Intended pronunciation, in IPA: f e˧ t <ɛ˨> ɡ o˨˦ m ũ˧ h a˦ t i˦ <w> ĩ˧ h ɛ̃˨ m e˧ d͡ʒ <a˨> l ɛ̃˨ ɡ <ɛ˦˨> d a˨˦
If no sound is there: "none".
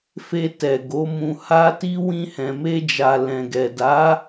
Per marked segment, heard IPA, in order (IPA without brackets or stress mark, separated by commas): ɛ˨, w, a˨, ɛ˨